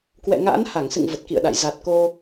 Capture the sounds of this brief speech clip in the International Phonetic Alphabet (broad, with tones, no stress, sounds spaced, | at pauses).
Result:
k w ɛ̰˧˨ ŋ a̰ː˧˥ n h a˧˩ ŋ s ɨ̰˧˨ ŋ v ə˨˩ t̚ k ḭ˧˨ ə̯ ɗ a̰˧˨ j z a˨˩ t̚ k o˧